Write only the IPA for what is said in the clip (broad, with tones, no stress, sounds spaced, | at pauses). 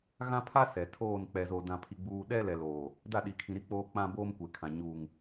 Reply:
ɣ ã˦ pʰ a˦ s ɛ˨ tʰ oː˦˨ n k͡p ɛ˨ z oː˨ d ã˨ pʰ i˨ ɡ͡b uː˨ ɗ ɛ˦ l ɛ˨ l oː˨ | d a˦˨ ɗ i˨ kʰ ĩ˨ ɾ i˦ k͡p oː˦ k͡p ã˦ b oː˦ m kʷ e˨ kʰ ã˨ ɲ uː˨ ŋ